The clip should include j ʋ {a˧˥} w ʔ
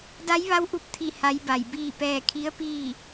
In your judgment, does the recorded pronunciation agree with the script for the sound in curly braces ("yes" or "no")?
yes